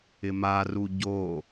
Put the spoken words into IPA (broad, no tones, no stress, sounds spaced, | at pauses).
ɪ m a r u ɟ o